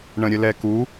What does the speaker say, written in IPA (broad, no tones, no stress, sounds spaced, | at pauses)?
ɳ ə̃ ɾʲ ə l ɛ k u